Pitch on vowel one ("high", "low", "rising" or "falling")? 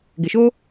low